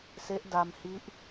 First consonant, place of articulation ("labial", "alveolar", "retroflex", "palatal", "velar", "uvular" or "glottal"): alveolar